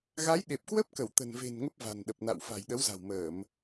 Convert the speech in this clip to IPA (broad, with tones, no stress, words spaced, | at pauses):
ɣa˨˦jɗe˨˩p̚kwə˦˥p̚kə˧˩w t̪ə̤˨˩nve̤˨˩n ŋə˦˥p̚va̤˨˩nɗə˨˩p̚na̰˧˨w fa̤˨˩jɗə˨˦wza̤˨˩wməː˧˩˨m